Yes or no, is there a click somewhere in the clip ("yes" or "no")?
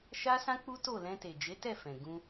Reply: no